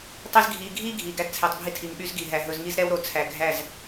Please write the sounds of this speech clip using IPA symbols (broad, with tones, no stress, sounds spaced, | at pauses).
tˤ i˦ z ɡʱ iː˧ ɡʱ iː˦ ɡʱ i˨ ɡ æ˧ d t͡sʰ ɛ˨ tˤ bʱ i˧ tʰ i˨ ŋ ɓ y˦ z ɡ i˨ ɦ æ˨ ɦ ɵ˧ z ŋ i˦ z ɾ ɛ˦ w ɾ o˨ t͡sʰ æ˨ ɡʱ æ˦˨ z